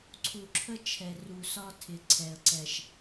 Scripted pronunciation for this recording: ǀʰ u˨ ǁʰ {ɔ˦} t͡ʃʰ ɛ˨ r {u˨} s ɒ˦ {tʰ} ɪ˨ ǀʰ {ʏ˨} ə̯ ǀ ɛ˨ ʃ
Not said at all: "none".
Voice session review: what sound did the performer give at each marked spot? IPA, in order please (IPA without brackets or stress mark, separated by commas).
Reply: ə˦, u˨, tʰ, ɛ˨